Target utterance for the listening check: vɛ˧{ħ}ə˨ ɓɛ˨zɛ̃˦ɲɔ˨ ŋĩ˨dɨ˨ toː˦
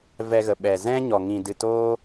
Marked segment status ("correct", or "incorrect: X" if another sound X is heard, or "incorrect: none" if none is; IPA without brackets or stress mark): incorrect: ɣ